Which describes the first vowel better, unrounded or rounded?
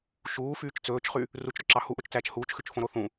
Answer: rounded